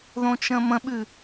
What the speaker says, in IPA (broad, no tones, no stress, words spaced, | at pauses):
ðõt͡ʃə̃mə̃ɓʉ